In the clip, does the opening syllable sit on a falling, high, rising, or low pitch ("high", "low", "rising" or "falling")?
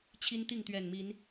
high